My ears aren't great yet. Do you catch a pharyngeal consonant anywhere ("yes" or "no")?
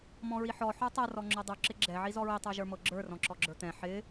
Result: yes